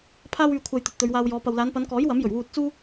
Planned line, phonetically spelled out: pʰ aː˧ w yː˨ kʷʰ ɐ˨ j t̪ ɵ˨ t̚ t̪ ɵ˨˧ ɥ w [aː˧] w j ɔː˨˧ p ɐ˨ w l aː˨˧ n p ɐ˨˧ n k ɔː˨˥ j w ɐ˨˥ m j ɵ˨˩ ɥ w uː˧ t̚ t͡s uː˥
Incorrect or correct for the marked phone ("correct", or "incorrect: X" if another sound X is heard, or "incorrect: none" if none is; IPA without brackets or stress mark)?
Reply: correct